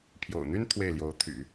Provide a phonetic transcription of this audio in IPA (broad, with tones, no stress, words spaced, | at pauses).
pʰjo̰˨˩ʊ̯n̪y˥n t̪ʰwe˥˩ɪ̯ljo˧˥ʊ̯ t̪ʰy̰˨˩˦